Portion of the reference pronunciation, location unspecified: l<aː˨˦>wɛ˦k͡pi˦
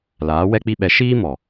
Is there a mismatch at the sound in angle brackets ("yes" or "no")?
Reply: no